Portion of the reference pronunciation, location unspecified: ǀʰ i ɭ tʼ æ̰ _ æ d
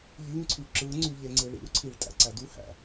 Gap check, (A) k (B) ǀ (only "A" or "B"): B